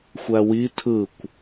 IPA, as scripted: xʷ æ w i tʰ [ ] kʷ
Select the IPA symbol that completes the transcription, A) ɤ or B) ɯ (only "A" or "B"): B